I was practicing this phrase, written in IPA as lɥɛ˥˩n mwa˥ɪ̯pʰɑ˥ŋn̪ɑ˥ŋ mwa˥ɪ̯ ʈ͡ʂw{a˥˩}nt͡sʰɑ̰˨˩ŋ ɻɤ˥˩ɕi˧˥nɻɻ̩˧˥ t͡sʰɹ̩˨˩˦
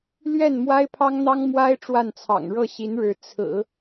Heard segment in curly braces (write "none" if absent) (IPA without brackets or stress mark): a˥˩